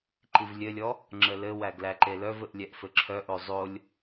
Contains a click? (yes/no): yes